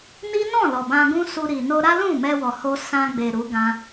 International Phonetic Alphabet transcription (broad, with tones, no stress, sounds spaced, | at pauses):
n i˦ n ɔ̃˦˨ l ɔ˨ b ã˧ ɡ ũ˦ s u˧ ɾ i˨ n o˧ ɾ a˦ l ũ˦˨ m ɛ˧ w ɔ˨ h o˧ s ã˧ ɡ͡b e˨ ɾ u˨˦ ɡ ã˧